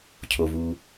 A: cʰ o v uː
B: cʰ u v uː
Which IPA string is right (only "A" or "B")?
A